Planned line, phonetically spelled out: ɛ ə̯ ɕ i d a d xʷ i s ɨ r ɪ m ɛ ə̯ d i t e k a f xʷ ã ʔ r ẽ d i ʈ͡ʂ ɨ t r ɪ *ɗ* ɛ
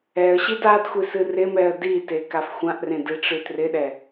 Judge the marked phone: correct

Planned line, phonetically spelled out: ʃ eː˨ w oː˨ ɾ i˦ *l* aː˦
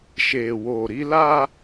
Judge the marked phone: correct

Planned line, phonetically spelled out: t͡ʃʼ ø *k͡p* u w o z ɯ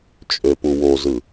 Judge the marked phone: incorrect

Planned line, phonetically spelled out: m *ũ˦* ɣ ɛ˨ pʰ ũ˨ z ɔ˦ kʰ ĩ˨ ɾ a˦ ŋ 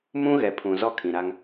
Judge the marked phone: correct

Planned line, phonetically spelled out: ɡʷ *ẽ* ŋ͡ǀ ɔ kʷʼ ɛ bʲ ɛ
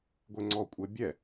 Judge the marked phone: incorrect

